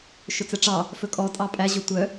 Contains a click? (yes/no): no